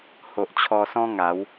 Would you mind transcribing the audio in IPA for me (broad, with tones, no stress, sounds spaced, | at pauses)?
h o˨ ʔ t͡ɕʰ ɔ˧ s ɔ̃˦ ŋ a˨˦ w